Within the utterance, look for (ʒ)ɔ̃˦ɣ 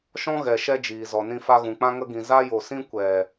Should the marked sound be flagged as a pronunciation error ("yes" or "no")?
yes